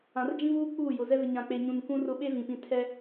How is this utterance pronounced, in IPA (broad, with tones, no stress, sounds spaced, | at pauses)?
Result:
ã˨ r d͡ʒ ĩ˦ v uː˦ k͡p uː˦˨ j ʊ˨ z ɛ˦ v ɪ˨ ɲ ã˨ k͡p e˨ ɲ ũ˨ n k ũ˦ r ʊ˦ ɓ e˦ v ĩ˨ p ĩ˨ tʰ ɛ˦